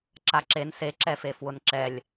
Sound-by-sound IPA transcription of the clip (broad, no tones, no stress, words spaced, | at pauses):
ǁaǁen seǁɛfe fwʊnǁɛlʲ